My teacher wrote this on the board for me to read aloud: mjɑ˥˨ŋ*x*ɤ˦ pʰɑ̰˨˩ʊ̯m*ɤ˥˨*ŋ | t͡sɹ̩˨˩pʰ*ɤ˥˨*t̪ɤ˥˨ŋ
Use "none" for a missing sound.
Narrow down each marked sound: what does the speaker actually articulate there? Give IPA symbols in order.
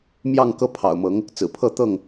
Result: k, ɤ˨˦, ɤ˥˨

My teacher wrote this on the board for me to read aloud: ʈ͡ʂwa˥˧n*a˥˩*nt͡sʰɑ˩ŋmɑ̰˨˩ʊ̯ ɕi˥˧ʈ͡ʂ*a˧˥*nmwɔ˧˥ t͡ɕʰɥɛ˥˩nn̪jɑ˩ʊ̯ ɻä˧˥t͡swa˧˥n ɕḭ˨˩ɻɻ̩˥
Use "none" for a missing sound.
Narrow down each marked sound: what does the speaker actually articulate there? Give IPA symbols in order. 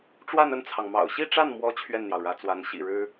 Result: ə˥˩, a˥˩

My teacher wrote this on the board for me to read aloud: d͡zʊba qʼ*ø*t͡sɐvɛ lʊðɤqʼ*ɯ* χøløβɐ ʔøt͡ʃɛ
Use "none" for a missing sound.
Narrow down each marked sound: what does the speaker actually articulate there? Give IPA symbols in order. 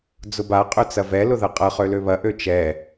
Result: ø, ɤ

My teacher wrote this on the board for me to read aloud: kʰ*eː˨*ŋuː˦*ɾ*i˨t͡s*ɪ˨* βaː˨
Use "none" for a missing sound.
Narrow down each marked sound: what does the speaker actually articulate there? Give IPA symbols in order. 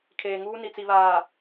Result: eː˨, n, i˨

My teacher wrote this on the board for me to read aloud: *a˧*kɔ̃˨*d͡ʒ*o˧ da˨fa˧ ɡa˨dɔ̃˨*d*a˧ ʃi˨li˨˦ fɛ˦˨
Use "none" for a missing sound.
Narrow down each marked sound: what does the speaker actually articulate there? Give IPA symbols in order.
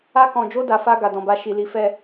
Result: a˧, d͡ʒ, b

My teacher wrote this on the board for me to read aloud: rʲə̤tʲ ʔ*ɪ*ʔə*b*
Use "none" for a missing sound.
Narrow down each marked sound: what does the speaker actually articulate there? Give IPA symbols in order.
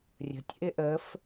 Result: ɪ, f

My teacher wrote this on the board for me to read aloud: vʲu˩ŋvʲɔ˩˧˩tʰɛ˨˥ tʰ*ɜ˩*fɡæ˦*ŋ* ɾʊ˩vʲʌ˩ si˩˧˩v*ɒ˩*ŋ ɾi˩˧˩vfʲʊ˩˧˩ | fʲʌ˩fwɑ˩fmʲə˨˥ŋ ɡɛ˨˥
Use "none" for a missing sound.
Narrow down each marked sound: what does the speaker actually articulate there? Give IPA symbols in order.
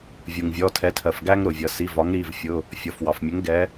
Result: ɜ˩, ŋ, ɒ˨˥

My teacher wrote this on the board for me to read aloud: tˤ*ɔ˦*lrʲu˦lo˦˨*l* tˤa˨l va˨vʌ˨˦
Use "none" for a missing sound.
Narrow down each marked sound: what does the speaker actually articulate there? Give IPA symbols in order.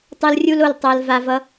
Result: ʌ˦, l

